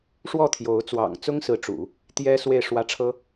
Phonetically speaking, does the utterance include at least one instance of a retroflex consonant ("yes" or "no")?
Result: yes